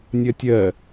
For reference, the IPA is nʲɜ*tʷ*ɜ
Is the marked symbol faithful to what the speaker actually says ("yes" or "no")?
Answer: no